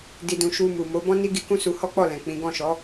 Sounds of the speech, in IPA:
di˧dũ˧ ʃu˧ mu˨mo˨˦ bɔ̃˦ni˦ɡi˧ kũ˦su˧ hɔ˦k͡pɔ˦˨lɛ̃˨ k͡pĩ˨˦ ɡɔ̃˦˨ʃɔ˨˦

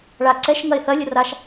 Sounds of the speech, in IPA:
ɭa ǀɛʃŋɐe̯ θɐlʲə raʃ

